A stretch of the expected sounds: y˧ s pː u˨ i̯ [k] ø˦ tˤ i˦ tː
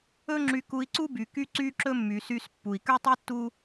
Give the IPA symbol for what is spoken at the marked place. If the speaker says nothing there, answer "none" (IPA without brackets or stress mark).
k